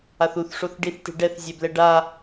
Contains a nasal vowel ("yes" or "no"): no